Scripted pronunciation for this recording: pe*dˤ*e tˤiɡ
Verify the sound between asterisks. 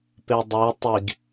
correct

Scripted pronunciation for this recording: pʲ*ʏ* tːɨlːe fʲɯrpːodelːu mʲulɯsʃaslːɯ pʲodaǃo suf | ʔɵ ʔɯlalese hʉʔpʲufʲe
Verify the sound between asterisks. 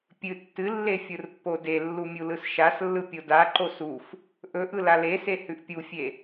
incorrect: ɨ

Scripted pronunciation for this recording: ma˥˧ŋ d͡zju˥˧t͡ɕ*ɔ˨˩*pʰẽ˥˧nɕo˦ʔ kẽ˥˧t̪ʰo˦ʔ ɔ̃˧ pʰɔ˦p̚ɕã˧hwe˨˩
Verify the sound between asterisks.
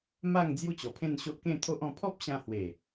correct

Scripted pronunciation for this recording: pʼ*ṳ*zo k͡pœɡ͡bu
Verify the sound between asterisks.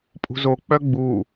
correct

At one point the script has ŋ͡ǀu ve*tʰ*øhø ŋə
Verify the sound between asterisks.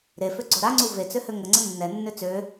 incorrect: t͡s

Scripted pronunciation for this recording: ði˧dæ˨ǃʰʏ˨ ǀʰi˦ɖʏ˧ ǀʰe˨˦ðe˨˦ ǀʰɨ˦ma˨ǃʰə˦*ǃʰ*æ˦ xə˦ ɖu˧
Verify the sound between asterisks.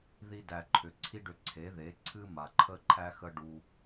correct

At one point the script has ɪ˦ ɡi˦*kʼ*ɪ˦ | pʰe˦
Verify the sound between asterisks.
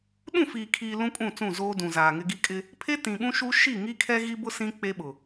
correct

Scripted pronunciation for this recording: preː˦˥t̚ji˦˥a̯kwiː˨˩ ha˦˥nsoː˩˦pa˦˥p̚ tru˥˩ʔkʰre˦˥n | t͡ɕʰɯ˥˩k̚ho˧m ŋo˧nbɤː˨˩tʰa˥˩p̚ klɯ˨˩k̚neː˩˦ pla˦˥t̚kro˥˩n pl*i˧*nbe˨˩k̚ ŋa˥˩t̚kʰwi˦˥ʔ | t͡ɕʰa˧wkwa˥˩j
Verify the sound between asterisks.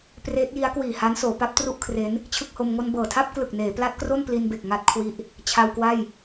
correct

